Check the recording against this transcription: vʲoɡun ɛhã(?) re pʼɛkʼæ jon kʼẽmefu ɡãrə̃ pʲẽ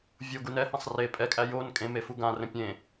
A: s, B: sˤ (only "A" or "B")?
B